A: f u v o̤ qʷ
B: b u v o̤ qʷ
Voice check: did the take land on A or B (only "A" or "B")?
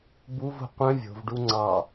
B